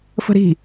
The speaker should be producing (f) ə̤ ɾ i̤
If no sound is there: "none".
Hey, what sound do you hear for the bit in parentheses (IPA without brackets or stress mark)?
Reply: f